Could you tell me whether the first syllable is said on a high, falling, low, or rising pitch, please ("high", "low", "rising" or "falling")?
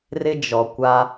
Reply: high